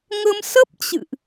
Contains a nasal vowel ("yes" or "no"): no